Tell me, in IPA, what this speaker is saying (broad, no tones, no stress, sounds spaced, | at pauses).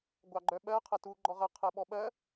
ɡʷ ɑ ɡ͡ǃ œ ɓ ɜ qʰ ɐ t u ɡ͡ǃ ɔ ʁ ɐ qʰ ɜ ɓ ɔ ɓ ɜ